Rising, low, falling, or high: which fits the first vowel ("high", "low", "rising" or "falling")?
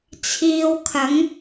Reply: low